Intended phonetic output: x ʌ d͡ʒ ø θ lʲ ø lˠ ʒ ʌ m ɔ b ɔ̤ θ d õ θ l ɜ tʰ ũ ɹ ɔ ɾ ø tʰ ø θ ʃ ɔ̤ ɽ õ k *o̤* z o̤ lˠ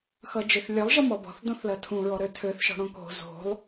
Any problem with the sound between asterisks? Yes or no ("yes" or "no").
no